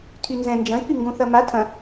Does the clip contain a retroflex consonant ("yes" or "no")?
no